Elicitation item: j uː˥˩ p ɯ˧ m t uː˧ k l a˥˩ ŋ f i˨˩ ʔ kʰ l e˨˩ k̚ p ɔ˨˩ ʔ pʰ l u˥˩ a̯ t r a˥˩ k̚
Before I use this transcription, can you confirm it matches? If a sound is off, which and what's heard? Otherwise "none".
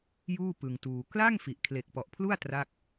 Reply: m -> ŋ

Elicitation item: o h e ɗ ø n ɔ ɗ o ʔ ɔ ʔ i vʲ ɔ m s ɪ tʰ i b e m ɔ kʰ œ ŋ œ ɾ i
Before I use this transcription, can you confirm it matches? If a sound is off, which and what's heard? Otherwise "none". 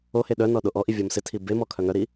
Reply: ø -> œ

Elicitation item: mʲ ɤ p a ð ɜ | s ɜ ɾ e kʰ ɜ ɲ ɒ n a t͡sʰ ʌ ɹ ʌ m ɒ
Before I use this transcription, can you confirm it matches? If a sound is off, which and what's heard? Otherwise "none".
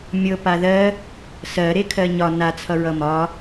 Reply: none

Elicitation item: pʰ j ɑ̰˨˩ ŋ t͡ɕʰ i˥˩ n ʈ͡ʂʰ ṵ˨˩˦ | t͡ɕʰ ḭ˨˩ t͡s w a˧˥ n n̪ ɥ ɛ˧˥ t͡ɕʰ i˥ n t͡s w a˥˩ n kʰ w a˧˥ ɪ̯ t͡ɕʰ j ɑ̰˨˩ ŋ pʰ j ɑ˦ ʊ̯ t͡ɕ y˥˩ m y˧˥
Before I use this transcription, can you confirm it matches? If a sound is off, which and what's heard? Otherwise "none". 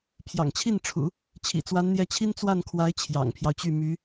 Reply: ɥ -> j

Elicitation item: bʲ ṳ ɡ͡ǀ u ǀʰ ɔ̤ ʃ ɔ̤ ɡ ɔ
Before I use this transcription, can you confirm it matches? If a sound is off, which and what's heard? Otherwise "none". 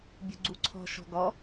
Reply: none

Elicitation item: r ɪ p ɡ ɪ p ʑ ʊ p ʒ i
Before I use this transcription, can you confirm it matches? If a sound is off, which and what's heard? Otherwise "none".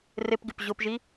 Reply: none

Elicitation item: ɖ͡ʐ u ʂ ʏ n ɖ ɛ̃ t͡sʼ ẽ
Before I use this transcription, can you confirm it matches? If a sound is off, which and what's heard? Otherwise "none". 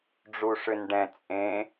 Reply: none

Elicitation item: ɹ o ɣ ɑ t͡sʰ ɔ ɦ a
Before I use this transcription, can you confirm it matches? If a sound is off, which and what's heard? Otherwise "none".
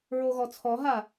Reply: ɑ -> ɔ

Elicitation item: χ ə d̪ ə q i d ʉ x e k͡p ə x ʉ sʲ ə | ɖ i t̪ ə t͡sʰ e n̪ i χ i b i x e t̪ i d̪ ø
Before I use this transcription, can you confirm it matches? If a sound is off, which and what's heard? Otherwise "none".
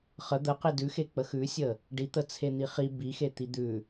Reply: ø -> ʉ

